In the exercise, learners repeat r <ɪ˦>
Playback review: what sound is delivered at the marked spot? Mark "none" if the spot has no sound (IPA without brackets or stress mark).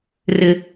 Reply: ɪ˦